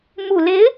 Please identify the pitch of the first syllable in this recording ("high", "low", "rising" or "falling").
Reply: low